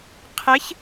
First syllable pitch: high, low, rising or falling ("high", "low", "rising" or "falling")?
rising